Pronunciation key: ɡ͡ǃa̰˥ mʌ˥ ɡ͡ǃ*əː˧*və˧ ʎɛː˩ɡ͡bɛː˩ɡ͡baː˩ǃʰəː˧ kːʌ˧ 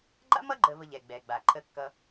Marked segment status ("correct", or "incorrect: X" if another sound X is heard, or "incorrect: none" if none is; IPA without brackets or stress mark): correct